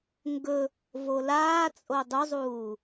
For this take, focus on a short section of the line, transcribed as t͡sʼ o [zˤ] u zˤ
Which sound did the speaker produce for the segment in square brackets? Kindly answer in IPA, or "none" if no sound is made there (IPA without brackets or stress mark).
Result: dˤ